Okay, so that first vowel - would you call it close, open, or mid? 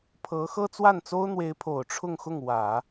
mid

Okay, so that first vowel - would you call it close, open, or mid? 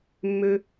mid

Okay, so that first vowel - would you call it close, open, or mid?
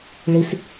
close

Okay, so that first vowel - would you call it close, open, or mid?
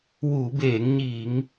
close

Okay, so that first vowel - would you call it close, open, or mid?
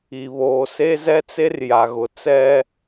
close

